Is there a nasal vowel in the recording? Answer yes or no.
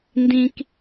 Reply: yes